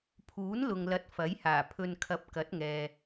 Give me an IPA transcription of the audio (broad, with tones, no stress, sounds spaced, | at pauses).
pʰ uː˨˥ n l ʊ˨ ŋ l ɐ˨˥ t̚ f ɐ˨˥ j h aː˨˩ pʰ ɵ˨ n kʰ ɐ˨˥ p̚ k ɐ˨˥ t̚ ŋ ɛː˨